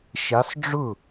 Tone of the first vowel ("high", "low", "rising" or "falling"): rising